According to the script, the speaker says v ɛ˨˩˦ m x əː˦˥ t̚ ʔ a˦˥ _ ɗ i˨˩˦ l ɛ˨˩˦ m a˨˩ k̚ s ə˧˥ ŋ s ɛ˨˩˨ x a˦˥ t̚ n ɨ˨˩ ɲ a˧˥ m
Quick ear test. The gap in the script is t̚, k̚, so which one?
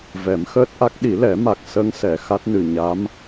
k̚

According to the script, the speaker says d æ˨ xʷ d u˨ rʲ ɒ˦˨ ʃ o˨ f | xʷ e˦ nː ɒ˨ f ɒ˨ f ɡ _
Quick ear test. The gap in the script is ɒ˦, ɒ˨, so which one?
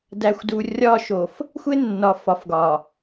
ɒ˨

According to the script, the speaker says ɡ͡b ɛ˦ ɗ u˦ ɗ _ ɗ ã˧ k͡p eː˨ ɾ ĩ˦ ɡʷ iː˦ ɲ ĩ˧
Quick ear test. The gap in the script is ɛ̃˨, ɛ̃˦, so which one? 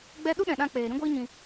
ɛ̃˨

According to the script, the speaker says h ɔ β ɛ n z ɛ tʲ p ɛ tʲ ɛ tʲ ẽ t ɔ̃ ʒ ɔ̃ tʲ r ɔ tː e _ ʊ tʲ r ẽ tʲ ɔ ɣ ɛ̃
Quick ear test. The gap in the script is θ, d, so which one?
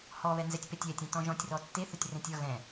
θ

